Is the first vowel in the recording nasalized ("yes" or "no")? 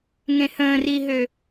yes